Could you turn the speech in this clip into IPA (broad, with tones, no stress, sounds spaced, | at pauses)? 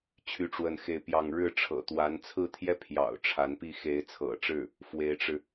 t͡ɕʰ y˥˧ ʈ͡ʂ w ə˥˧ n x e˥˧ ɪ̯ p j ɑ˥˧ ŋ ɻ ɻ̩˥˩ ʈ͡ʂʰ ɤ̰˨˩ t̪ w a˧˥ n t͡sʰ ɹ̩˥˩ t̪ʰ j ɛ˥ pʰ j ɑ̰˨˩ ʊ̯ ʈ͡ʂʰ a˧˥ n p i˥˩ x e˧˥ ɪ̯ t͡sʰ ɤ̰˨˩ ʈ͡ʂ ɻ̩˥˩ | f w e˧˥ ɪ̯ ʈ͡ʂ ɻ̩˧